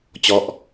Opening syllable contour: falling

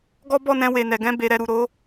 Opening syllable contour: high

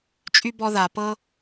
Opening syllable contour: high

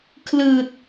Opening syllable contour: low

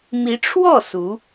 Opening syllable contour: rising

